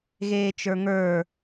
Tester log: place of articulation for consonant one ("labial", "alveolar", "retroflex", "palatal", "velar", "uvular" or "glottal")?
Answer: velar